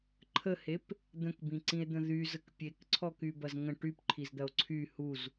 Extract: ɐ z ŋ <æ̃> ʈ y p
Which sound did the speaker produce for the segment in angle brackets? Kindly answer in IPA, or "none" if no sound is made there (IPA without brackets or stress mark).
ə̃